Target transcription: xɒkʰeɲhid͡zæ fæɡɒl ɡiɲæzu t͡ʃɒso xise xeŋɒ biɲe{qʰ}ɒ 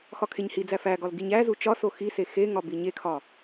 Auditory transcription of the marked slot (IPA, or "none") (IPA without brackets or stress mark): kʰ